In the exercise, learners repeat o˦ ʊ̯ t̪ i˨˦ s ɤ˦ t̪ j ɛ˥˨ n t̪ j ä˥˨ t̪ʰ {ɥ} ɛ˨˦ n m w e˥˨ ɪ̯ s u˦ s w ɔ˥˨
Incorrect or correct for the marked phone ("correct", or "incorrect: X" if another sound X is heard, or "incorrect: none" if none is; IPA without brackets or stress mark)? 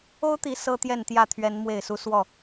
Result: correct